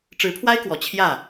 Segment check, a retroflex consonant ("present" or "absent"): present